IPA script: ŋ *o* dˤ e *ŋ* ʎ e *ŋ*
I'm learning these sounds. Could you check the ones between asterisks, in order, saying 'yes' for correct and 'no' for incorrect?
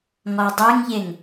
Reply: no, yes, yes

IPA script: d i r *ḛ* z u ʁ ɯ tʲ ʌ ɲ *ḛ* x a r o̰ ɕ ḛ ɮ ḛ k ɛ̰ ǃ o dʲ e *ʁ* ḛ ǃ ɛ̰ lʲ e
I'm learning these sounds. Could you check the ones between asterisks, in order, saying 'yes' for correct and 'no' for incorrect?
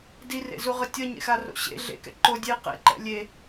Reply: yes, yes, no

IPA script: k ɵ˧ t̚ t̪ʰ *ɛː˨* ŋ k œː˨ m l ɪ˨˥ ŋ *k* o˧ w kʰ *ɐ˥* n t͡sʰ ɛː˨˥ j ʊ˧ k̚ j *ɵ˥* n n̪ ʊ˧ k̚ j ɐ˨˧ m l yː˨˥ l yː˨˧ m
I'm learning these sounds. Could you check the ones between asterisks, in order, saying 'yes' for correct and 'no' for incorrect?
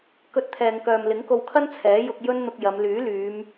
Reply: yes, yes, yes, yes

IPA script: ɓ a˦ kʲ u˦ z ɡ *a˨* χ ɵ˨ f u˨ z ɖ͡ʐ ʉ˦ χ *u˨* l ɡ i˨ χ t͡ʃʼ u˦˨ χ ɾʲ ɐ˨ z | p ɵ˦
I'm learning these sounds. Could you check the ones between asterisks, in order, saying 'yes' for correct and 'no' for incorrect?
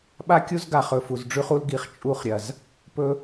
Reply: yes, no

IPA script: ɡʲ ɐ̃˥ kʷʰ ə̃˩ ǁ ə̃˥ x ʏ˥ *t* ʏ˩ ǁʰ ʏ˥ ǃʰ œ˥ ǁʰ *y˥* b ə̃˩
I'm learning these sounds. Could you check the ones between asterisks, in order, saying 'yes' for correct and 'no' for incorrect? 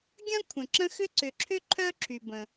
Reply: no, no

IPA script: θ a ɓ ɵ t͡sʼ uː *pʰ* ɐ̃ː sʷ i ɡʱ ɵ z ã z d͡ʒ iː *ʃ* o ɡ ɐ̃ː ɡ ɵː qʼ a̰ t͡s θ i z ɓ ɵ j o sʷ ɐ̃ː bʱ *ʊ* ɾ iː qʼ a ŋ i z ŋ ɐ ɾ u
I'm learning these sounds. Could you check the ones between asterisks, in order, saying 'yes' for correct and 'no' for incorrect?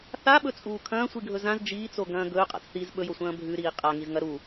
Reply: no, no, no

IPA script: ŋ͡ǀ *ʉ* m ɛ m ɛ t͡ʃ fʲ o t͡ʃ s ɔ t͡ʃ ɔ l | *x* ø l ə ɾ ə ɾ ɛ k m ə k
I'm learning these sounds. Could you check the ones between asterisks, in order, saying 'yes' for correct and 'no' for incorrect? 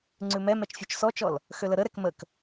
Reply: yes, yes

